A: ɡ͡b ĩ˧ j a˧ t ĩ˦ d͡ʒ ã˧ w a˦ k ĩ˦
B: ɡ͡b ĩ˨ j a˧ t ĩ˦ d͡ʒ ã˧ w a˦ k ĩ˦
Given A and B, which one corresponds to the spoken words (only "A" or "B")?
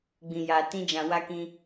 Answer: A